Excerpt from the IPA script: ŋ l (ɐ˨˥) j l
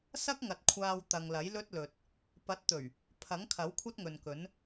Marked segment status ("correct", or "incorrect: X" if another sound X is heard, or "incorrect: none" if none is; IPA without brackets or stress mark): correct